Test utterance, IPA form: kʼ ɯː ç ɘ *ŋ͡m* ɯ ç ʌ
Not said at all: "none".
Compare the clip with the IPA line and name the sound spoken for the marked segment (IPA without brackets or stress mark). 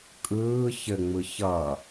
ŋ͡m